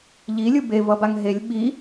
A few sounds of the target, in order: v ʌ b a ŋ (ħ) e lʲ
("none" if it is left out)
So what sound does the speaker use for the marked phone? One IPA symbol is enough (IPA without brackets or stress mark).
ɦ